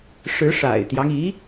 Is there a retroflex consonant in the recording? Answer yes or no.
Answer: yes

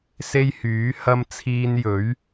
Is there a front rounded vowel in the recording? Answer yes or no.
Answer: yes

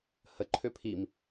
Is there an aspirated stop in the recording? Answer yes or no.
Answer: yes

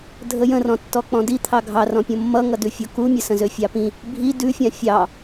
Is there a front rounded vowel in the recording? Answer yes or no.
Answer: yes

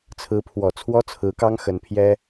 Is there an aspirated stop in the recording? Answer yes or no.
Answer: yes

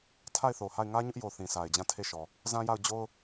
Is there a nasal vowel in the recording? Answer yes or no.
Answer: yes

